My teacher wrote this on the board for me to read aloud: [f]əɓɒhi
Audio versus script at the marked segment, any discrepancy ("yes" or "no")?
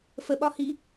no